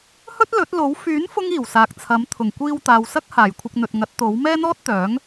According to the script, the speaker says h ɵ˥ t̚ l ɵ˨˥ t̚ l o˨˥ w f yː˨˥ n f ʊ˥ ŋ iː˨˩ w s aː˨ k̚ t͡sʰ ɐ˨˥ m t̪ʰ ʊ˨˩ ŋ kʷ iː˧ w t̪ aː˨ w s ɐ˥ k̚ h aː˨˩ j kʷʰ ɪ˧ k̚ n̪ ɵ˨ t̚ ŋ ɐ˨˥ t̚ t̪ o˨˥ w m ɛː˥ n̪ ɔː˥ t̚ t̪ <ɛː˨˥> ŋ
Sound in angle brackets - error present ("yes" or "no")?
yes